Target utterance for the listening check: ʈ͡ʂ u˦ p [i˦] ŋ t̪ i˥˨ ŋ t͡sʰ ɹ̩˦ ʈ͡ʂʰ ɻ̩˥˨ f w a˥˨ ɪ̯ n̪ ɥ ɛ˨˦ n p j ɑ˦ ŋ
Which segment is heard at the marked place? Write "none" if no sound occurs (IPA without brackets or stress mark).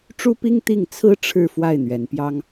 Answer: i˦